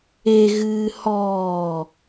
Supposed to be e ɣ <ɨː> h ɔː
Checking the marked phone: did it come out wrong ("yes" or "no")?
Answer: no